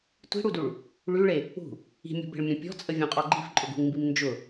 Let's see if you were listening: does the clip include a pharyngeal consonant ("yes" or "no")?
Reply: no